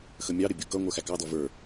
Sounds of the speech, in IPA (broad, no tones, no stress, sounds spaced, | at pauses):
x ə mʲ ɑ ɾ ɪ bʲ u k ʌ ŋʷ ə˞ x æ k ɑ d ɔ v ə˞